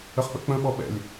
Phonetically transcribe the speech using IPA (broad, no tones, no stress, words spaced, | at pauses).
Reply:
əχk͡pə̰k͡pə̃ ɓɔɓɛ̰lʲ